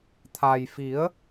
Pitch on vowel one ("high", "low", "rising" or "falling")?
low